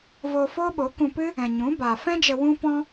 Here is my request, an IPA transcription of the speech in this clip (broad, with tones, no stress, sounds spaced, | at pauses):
v oː˧ f oː˦ ɓ o˨˦ k ũ˧ p ɨ˦ | ɛ̃˨ ɲ ũ˨˦ b a˨ f ɛ̃˦ d͡ʒ ə˧ w ũ˦ p ɔ̃˦